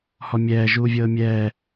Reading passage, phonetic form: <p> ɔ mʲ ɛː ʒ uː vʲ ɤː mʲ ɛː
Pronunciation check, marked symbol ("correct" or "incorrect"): incorrect